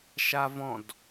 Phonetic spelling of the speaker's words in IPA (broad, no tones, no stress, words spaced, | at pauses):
ʃavɔ̃d